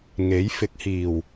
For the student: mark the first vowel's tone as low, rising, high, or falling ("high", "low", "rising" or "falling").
rising